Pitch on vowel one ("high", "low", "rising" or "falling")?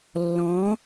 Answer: rising